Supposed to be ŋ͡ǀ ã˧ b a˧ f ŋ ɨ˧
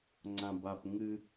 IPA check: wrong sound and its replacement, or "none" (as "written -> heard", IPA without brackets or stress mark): f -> p